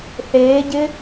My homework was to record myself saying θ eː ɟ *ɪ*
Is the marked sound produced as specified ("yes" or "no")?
yes